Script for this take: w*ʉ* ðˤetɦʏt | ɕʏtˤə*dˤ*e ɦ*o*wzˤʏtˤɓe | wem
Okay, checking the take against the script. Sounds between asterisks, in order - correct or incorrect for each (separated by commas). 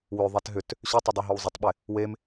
incorrect, correct, correct